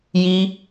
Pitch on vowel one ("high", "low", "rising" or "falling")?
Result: high